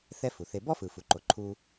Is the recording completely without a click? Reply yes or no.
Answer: no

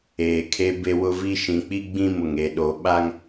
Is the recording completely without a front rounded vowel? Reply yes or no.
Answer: yes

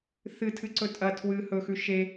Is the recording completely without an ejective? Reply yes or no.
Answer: no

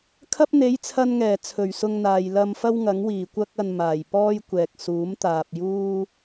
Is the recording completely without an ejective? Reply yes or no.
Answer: yes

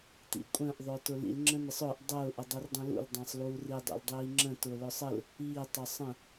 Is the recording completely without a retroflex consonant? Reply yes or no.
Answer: yes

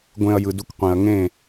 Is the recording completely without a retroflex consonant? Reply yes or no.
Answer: yes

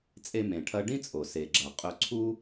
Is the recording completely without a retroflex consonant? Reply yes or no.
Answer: no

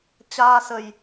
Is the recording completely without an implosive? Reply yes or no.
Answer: yes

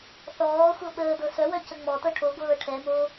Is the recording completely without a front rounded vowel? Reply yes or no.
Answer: no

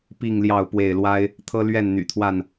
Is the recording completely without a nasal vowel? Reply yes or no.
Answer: yes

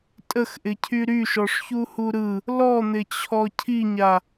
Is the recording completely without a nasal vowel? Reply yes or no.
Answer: yes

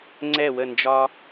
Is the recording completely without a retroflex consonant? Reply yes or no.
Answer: yes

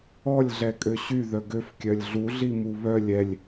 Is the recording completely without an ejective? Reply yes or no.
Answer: no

